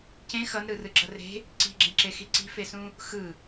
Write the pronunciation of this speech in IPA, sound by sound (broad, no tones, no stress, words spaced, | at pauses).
cẽ xʌnɾɯ rɯɡ͡ǁʌre̤ | ǀi̤ɡ͡ǁẽǁexi ǀi̤fesũ | xɯ